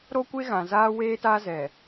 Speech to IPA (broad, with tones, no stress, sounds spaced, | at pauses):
ɾ o˦ kʷ e˦ ɣ ã˨ z aː˦ w eː˦ t a˦ z ɛ˨